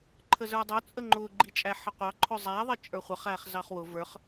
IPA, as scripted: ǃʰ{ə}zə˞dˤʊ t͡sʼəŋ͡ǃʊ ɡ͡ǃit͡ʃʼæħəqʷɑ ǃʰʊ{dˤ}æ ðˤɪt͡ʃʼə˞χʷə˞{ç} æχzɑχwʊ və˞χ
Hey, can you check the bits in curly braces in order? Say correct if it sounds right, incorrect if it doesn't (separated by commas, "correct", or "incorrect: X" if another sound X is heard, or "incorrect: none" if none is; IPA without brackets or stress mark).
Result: correct, incorrect: zˤ, incorrect: χ